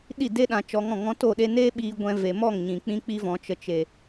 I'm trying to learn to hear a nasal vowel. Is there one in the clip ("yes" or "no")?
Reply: yes